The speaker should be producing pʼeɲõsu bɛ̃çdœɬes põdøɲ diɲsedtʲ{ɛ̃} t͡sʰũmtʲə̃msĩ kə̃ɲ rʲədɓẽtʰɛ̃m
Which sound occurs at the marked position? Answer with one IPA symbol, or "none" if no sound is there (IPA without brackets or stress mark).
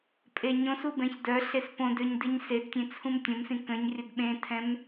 ẽ